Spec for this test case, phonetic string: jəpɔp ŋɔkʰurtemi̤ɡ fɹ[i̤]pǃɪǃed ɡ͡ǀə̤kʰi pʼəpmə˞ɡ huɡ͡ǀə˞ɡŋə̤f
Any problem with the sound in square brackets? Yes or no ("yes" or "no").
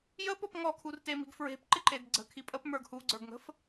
yes